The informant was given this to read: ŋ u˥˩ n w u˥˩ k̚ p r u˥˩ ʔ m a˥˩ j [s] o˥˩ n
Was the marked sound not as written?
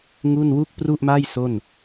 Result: no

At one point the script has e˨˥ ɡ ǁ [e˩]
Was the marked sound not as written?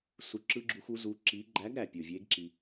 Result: yes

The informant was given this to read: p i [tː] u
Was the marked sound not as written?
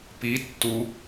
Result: no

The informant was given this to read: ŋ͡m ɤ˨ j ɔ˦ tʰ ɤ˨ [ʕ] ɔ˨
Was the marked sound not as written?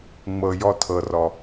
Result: yes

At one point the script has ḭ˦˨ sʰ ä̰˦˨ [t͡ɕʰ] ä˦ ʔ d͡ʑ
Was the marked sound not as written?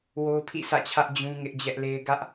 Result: no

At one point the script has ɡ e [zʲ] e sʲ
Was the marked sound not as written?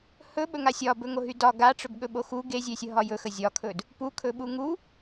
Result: no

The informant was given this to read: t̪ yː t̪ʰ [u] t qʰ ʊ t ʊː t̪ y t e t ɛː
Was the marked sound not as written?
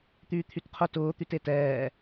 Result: yes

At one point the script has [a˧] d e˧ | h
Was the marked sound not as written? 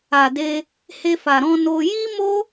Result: yes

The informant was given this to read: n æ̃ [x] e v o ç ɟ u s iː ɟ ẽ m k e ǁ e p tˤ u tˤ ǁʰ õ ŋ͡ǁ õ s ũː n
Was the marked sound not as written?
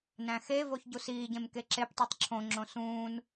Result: no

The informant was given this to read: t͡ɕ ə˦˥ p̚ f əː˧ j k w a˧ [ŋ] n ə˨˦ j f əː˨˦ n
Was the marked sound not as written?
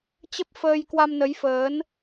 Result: yes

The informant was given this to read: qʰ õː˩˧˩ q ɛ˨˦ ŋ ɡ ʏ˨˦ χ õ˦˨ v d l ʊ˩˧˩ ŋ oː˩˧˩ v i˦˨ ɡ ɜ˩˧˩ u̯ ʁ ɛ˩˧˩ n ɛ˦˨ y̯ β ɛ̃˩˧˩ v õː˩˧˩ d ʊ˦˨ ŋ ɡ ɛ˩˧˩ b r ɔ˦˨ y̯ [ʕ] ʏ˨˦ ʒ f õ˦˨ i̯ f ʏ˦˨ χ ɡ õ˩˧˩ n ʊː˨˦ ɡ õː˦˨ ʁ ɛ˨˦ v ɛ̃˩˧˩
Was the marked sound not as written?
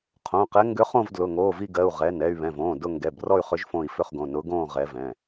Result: yes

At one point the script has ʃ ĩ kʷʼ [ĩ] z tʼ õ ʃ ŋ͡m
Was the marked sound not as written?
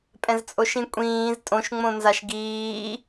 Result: yes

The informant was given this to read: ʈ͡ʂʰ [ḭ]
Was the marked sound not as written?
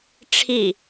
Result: yes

